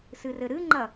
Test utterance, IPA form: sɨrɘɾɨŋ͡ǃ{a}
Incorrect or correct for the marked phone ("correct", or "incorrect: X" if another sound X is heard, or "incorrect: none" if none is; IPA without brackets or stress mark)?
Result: incorrect: ɐ